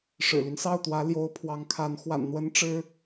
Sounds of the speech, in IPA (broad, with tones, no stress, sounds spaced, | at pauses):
ʂ ɻ̩˨˩ l y˦ n s ɑ˥˩ ʊ̯ t̪ w ä˧˥ l j o˧˥ ʊ̯ pʰ w ɑ˧˥ ŋ kʰ a˧˥ n x w a̰˨˩ n n̪ w ə˧˥ n ʈ͡ʂ ɻ̩˥